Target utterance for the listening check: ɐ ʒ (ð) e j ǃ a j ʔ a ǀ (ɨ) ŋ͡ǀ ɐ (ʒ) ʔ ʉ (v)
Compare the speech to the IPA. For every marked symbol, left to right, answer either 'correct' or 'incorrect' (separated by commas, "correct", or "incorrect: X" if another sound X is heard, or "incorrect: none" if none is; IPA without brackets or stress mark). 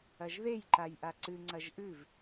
correct, correct, correct, correct